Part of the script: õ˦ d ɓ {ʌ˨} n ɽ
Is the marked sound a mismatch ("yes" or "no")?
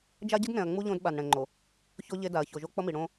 yes